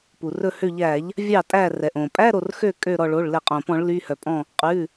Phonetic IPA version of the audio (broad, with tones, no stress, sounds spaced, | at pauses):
p u˩ r ɵ˧˩ h ø˧˩ ʎ æ˧˩˧ ʎ | vʲ ɑ˥˩ tʼ æ˧˩ r ɛ˩ ʔ õ˩ pʼ æ˧˥˧ ɾ o˧˩ r x ø˥˩ kʼ ø˧˩ ɾ ɔ˧˩ ɭ o˩˧˩ ɭ l ɛ˧˩˧ qʼ õ˩ p ɔ̃˧˩˧ ɭ l y˩˧˩ h œ˩ pʼ ɔ̃˧˩ | qʼ ʉ˩˧˩